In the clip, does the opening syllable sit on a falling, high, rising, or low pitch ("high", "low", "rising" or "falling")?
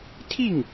falling